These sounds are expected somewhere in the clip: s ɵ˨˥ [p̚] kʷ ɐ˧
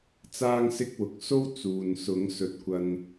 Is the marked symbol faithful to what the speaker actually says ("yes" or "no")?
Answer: no